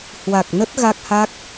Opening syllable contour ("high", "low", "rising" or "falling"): low